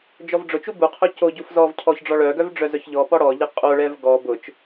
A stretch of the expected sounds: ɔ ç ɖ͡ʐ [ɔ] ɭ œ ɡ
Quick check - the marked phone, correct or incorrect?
correct